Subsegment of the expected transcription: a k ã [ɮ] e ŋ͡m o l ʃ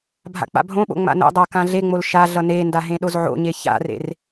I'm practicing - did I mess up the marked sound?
no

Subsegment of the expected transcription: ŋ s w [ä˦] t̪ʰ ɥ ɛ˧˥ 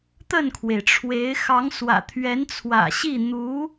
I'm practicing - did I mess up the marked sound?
yes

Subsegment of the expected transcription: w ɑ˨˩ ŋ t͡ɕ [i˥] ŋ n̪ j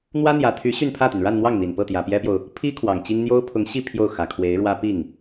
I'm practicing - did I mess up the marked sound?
no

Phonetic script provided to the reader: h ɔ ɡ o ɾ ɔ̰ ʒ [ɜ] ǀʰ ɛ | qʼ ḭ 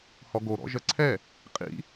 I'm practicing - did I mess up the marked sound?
no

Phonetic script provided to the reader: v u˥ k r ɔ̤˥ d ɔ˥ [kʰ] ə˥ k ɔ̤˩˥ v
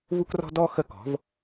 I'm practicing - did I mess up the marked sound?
yes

